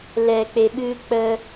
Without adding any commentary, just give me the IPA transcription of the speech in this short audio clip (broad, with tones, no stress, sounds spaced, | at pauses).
l ɛ˨ k͡p e˨ ɓ ɨ˧ k͡p ə˧